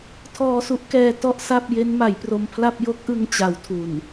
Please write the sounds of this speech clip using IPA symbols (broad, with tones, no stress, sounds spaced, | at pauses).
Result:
tʰ ɔː˧ s u˦˥ ʔ k ɛː˧ t ɔ˥˩ ʔ s a˥˩ p̚ j e˦˥ n m a˩˦ j p r o˧ m pʰ l a˥˩ p̚ j o˦˥ k̚ ʔ ɯ˧ ŋ t͡ɕ a˩˦ w tʰ u˨˩ n